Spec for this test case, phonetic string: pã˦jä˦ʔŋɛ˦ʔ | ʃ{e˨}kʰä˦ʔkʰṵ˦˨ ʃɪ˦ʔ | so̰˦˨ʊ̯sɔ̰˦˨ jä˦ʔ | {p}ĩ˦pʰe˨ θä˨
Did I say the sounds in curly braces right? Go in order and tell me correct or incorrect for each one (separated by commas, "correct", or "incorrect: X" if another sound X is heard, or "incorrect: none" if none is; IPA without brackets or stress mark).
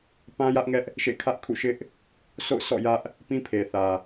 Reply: incorrect: ḛ˦˨, correct